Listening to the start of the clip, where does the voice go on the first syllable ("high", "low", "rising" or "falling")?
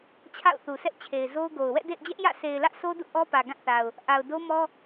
falling